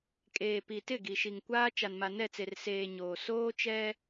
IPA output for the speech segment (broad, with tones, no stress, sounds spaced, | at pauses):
kʼ eː˨ p i˨ t ɪ˦˨ ɡ i˨ ʃ i˨ ŋ kʷ aː˦ t͡ʃ a˨ n m a˨ n ɛ˦˨ t͡s e˨ r s eː˨ ɲ oː˨ s oː˦ t͡ʃ ɛ˦